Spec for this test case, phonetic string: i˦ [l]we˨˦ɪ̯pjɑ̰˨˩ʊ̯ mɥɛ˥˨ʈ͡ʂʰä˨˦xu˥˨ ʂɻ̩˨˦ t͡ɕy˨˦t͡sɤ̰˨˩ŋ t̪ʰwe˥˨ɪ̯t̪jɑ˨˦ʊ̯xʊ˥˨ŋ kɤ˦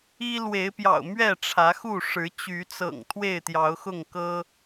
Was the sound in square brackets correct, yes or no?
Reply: yes